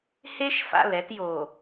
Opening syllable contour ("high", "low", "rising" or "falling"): high